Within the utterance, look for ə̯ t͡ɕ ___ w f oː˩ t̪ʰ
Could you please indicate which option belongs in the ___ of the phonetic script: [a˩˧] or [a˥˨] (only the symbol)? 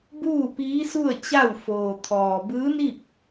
a˥˨